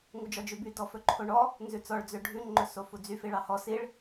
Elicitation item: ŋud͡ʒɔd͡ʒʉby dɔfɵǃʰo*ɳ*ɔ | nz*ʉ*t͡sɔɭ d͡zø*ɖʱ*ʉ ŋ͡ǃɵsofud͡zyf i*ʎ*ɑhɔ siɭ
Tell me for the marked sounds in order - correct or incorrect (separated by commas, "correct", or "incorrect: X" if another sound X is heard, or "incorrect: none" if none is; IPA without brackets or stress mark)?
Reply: correct, correct, correct, incorrect: ɭ